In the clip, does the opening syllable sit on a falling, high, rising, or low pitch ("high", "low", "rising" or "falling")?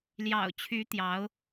low